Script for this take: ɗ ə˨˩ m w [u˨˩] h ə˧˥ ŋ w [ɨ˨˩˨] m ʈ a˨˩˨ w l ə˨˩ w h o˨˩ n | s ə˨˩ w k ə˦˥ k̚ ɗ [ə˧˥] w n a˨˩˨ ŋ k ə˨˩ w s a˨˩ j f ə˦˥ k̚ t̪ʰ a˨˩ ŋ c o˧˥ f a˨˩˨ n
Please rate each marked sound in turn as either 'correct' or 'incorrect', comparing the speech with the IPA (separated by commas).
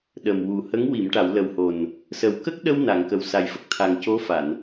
correct, incorrect, incorrect